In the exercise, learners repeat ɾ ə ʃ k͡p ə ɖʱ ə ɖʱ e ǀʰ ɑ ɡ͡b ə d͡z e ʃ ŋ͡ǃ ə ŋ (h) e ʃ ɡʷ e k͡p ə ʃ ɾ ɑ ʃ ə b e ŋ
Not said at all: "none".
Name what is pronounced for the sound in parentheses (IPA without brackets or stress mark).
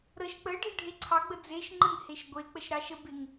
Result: h